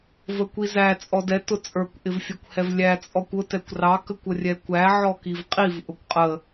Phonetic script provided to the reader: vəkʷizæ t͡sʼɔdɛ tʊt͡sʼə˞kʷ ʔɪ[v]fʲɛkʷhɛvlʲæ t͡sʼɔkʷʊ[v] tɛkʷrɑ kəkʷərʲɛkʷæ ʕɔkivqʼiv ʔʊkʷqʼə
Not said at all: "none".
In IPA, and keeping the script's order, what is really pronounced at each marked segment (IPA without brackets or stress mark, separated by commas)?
v, none